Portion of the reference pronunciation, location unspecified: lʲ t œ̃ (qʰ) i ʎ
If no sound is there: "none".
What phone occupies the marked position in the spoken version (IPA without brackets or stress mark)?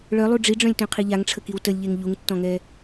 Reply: qʰ